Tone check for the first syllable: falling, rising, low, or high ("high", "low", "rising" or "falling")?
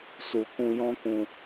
low